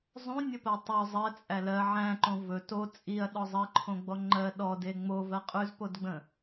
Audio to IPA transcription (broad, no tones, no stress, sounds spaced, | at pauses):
zˤ õ nʲ ə p ɜ tˤ ɵ zˤ ɜ t͡sʼ æ l ɜ ʕ æ̃ ǃ õ v ɵ t o t͡sʼ i ɐ̯ ɗ ɔ zˤ ɜ ǃʰ õ ɡ͡b ɔ ŋ͡ǃ ɜ ɗ ɔ d e ŋ͡m o v ɜ qʼ ʉ z p o d ɡ͡b ə̃